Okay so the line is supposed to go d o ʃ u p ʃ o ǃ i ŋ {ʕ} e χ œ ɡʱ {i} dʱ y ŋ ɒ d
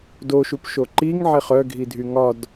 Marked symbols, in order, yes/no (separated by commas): yes, yes